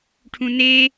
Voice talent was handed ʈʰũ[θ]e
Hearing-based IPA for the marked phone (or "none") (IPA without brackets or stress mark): n